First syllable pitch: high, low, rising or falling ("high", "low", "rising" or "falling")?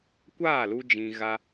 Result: falling